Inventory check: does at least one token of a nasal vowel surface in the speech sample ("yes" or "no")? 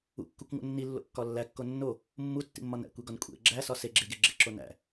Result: no